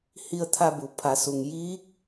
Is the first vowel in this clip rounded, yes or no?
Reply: no